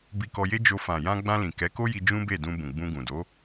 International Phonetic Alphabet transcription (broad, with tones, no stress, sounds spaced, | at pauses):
b i˧ k ɔ˧ j e˦ d͡ʒ o˧ f ã˨ j ã˧ ɡ͡b ã˧ l ĩ˨ k ɛ˨˦ k o˦ j i˧ d͡ʒ ũ˦ b e˦˨ d ũ˧ b ũ˨ ɡ͡b ũ˧ ɡ ũ˨ d o˨˦